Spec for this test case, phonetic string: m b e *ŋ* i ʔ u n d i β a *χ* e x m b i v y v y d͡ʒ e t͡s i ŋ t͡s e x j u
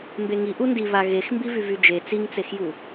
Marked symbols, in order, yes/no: yes, no

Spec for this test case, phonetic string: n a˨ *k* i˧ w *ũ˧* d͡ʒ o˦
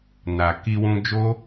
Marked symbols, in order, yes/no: yes, yes

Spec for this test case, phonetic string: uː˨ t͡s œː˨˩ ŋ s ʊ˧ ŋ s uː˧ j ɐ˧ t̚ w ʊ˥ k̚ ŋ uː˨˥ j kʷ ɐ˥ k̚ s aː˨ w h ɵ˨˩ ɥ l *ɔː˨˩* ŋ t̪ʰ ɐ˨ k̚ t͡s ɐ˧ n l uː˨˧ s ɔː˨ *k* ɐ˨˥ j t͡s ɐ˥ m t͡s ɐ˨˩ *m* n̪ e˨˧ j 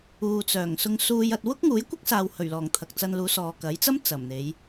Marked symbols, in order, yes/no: yes, yes, yes

